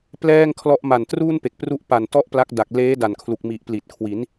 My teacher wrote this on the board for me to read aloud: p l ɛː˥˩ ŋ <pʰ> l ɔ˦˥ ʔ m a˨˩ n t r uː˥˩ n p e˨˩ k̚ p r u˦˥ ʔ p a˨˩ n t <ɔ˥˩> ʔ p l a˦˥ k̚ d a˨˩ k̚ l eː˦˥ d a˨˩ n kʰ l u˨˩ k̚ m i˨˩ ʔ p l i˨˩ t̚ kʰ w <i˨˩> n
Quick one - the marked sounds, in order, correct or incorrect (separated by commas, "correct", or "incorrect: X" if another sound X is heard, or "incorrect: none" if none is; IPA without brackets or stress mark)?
incorrect: kʰ, correct, incorrect: i˩˦